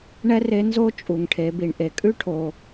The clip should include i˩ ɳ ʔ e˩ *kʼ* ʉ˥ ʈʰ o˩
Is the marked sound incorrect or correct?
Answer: correct